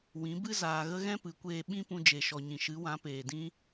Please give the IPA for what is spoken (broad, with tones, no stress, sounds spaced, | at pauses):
w ĩ˨˦ b ɨ˦ z aː˨ ɣ ə˦ ɣ ɛ̃˦ p ɨ˨˦ kʷ eː˧ ɓ ĩ˦ p ũ˧ d͡ʒ e˨ ʃ ɔ˨ ɲ ĩ˨ ʃ ɨ˨˦ w ã˨˦ p eː˨ d ĩ˦